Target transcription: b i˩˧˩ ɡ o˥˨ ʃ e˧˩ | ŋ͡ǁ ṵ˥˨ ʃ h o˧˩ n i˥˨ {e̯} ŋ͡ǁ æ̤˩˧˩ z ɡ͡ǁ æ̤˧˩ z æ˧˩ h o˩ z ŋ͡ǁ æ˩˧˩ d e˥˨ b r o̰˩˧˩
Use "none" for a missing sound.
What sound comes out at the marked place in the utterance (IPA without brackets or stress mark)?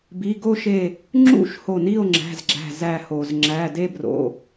o̯